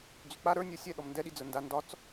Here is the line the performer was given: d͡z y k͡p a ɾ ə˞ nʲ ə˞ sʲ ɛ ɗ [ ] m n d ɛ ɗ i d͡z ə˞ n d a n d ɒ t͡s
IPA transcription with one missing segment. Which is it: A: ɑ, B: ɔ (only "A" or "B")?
B